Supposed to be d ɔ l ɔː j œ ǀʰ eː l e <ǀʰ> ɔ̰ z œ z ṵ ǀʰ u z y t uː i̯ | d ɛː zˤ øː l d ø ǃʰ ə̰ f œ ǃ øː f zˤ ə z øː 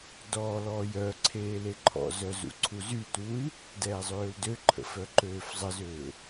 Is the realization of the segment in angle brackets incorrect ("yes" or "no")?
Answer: yes